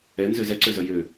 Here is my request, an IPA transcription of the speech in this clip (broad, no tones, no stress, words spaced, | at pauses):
ɛnzø zɛǀøzœ jø